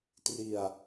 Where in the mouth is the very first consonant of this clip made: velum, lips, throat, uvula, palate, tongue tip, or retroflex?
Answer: tongue tip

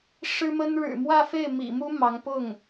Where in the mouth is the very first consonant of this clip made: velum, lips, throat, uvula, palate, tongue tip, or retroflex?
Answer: retroflex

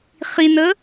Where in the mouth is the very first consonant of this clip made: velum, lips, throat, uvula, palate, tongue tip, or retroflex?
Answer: uvula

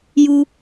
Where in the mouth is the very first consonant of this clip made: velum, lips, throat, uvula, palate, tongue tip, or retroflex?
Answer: palate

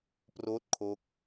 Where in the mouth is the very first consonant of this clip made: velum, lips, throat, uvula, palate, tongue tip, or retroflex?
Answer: lips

